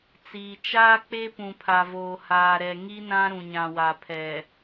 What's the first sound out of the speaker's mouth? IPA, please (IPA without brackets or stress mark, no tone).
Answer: t͡s